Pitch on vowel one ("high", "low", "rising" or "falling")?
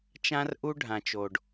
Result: high